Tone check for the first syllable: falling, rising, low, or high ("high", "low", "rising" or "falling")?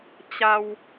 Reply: low